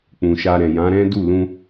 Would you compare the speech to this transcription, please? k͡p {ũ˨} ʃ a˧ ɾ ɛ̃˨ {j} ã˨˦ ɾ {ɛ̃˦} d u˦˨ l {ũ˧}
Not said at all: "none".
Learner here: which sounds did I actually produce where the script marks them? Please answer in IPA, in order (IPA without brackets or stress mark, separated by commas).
ũ˨, j, ɛ̃˦, ũ˧